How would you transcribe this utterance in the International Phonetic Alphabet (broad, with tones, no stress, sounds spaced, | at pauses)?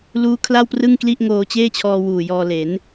l uː˦˥ kʰ l a˥˩ w p r ɯ˥˩ ŋ k l i˥˩ ʔ ŋ oː˧ t͡ɕ eː˥˩ t͡ɕʰ ɔː˧ w uː˨˩ j ɔː˧ l e˩˦ n